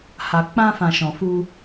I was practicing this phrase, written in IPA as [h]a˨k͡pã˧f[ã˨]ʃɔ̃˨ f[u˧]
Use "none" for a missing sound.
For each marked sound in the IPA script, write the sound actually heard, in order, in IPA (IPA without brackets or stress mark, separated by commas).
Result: h, ã˨, u˧